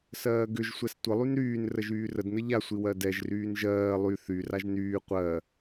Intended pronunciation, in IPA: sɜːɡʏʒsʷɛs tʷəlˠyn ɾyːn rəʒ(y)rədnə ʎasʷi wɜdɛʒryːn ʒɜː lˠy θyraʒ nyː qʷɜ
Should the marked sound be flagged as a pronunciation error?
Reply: yes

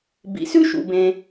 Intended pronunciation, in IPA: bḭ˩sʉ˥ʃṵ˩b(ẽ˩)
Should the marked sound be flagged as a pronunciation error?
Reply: no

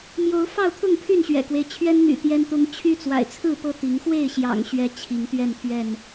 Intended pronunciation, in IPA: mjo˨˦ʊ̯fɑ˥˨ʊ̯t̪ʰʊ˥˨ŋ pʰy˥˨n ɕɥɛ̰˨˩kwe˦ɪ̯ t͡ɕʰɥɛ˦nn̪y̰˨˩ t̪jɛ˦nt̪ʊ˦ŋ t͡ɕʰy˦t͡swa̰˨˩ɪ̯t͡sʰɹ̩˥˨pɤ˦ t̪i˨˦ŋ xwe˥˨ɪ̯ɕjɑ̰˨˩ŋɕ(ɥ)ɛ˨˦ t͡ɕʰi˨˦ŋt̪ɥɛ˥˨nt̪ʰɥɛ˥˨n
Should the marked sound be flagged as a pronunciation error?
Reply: no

